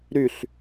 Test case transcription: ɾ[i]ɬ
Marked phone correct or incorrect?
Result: incorrect